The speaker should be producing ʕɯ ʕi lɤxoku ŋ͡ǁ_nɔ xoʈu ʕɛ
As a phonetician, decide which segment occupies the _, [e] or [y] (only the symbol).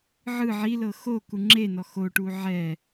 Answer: e